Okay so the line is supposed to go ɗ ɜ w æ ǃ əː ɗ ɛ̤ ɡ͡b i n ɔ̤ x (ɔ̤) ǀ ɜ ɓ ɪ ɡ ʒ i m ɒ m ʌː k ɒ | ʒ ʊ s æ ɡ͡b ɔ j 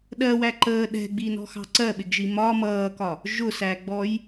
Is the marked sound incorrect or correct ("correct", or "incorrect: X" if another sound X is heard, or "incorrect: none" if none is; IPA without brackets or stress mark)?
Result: incorrect: ɑ̤